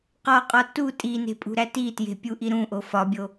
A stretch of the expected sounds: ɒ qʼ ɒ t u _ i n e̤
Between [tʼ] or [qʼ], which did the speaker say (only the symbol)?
tʼ